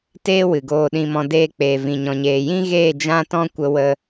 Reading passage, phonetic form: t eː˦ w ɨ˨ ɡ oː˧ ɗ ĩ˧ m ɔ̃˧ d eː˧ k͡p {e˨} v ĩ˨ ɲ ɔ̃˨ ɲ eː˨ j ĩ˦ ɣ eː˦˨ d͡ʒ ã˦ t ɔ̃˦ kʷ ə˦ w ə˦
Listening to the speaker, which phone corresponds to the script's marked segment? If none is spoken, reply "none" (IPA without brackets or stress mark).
eː˨